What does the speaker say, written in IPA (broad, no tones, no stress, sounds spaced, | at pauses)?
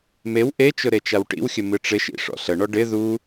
m e w ʔ e t͡ʃ ʊ ɾ e t͡ʃ a w ʈ ḭ w xʲ ə m ɨ ʈ͡ʂ ɪ ʃ ḭ ʂ ɔ̰ ɬ ə ɳ ɔ ɖ ɪ ð u